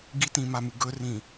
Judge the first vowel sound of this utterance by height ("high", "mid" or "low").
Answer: high